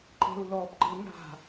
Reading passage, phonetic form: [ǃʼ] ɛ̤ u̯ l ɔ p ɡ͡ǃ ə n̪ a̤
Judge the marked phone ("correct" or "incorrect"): incorrect